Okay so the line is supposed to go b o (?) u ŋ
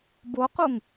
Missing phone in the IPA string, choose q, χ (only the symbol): q